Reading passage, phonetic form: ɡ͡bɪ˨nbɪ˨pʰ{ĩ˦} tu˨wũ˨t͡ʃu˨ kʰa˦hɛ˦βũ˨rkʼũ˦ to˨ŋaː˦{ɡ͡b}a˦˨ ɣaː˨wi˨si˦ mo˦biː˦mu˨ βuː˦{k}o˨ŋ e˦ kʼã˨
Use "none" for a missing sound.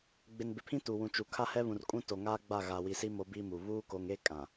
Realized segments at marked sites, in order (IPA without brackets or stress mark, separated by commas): ĩ˦, ɡ͡b, k